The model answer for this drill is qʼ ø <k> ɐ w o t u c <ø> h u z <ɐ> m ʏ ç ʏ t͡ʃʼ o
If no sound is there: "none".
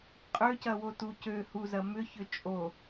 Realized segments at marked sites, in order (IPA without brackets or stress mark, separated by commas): c, ø, ɐ